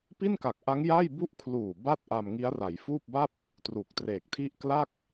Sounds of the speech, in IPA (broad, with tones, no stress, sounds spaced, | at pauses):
p i˥˩ n k a˨˩ k̚ ʔ a˦˥ ŋ j a˥˩ j b u˥˩ ʔ kʰ l uː˨˩ b a˥˩ t̚ ʔ a˧ m ŋ i˦˥ a̯ r a˩˦ j f uː˥˩ p̚ b a˥˩ p̚ | t r u˨˩ k̚ t r eː˨˩ k̚ tʰ i˥˩ ʔ k l a˥˩ k̚